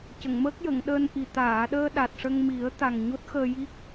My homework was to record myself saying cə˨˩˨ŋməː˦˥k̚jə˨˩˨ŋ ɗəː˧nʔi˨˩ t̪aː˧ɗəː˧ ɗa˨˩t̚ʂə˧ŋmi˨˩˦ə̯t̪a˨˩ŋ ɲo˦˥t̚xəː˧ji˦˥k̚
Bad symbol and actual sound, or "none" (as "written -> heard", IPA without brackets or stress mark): aː˧ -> aː˨˩˨